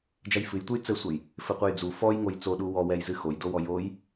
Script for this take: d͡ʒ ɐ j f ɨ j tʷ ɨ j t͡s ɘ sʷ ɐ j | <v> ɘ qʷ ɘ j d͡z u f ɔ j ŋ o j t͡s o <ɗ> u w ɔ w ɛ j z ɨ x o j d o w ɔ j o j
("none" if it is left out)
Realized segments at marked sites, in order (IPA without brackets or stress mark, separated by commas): f, ɗ